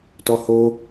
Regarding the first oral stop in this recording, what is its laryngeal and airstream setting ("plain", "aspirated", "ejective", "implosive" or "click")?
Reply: plain